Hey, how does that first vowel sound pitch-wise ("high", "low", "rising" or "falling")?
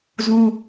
high